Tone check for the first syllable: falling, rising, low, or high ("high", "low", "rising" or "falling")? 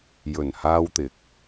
low